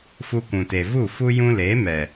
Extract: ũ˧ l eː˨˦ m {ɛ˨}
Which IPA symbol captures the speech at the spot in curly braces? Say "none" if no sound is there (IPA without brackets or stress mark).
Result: ɛ˨